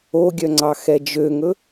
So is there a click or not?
yes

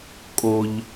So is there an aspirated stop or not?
no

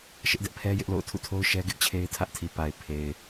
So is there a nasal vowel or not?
no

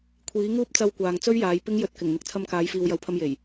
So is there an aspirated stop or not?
yes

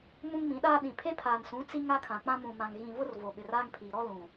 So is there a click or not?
no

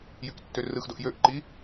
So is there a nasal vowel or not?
no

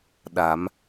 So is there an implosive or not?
yes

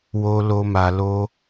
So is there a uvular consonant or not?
no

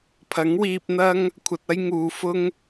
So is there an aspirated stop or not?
yes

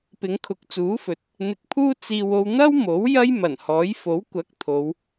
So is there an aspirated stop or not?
yes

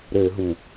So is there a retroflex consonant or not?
no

